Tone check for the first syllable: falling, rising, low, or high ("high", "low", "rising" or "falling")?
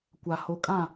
low